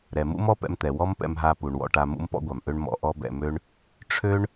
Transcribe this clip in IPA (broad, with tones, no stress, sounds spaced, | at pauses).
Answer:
ɾ ɛ˩ m ṵ˥ m ɔ˥ p ɛ̰˧ m t̪ ɛ˩ w ɔ˥ m p ɛ̰˧ m ɦ a˧ p u˩ ɳ w ɔ̰˧ ʈ a˧ m ṵ˥ m p ɔ̰˥ ɡʷ a˩ m ʔ ø˥ ɳ m ɔ̰˧ ʔ ɔ˥ b ɛ̰˧ m ø˥ ɳ | ʈ͡ʂʰ ø˥ ɳ